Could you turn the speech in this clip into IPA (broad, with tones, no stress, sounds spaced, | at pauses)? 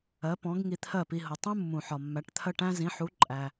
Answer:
ɜ˩˥ p ɔ̃˩˥ ɡ ŋ i˧ t̪ʰ ɜ˥˩ p i˧ ɦ ʊ˩ tˤ ũ˥ mː ũ˩ ħ ɒ˩ mː æ˩˥ ʈ t̪ʰ ɜ˥ ʈ æ̃˥ z ĩ˩˥ ħ u˩˥ ǃʼ æ˩